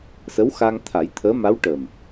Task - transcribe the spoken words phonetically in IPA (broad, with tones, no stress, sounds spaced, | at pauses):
s ə˧˥ w x a˧ ŋ t̪ʰ a˨˩˦ j t̪ʰ əː˧˥ m a˧˥ w ʈ ə˨˩ m